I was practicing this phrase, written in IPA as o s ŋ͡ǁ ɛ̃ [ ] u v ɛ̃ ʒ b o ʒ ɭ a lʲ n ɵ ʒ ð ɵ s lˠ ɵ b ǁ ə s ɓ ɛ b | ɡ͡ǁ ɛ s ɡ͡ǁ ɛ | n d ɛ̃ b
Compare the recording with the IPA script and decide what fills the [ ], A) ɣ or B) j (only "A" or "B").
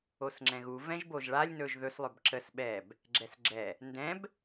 A